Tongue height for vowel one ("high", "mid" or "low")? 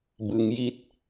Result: high